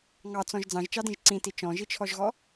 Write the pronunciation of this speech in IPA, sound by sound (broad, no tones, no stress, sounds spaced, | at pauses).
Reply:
ŋ ɑ t͡s ɔ̃ ʒ d͡z ɑ̃ ʒ t͡ʃ ɑ d ĩ ʒ ǀ ĩ t i t͡ʃ ɔ̃ ʒ i t͡ʃʰ ɔ ʒ ɣ ɔ